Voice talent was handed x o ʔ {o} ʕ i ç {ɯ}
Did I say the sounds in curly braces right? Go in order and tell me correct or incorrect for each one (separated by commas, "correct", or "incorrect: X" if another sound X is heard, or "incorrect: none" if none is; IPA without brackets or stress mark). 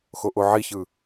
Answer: correct, correct